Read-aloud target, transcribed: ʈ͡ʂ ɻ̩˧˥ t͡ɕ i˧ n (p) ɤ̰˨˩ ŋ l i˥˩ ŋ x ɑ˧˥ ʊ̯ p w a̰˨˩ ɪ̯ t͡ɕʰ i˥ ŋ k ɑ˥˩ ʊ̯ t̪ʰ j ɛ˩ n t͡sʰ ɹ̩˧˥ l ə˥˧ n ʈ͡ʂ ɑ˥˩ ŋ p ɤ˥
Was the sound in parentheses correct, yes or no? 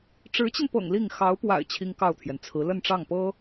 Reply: yes